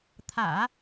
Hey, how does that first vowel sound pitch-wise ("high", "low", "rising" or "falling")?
low